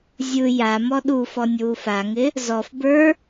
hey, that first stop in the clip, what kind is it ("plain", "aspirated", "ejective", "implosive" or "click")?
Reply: implosive